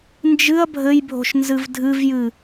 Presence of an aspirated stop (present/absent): absent